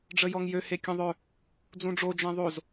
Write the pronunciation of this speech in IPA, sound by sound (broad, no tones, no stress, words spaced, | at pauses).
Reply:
ɖ͡ʐəjɔŋjø hekʲõðˤœ | d͡zũɖ͡ʐo d͡ʒɛ̃ðˤoz